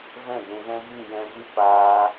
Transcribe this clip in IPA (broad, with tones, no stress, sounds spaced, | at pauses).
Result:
v ɛ̃˦˨ d ũ˨ ɣ ɛ̃˦ ɣ ɨ˦˨ j ɛ̃˧ v ɨ˦ p aː˦